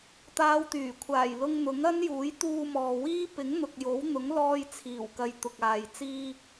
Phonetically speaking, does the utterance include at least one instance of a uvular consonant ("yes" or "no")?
no